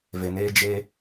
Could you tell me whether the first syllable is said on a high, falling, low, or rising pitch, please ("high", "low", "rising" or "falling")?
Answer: low